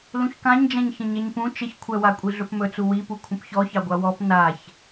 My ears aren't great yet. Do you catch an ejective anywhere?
yes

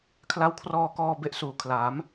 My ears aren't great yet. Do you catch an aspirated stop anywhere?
yes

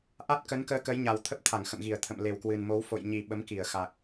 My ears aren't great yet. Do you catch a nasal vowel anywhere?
no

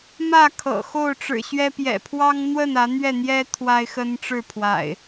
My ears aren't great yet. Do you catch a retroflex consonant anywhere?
yes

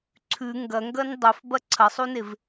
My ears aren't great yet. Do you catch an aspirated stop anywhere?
yes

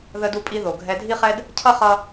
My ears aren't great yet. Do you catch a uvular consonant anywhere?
yes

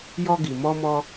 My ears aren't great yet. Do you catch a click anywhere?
no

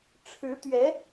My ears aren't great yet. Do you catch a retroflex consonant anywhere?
yes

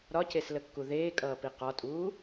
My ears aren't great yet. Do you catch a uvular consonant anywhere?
yes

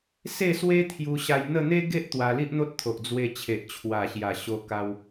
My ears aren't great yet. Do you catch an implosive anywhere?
no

